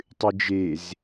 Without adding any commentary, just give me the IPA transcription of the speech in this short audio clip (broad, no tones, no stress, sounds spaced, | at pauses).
tˤ ɨ d͡ʒ e z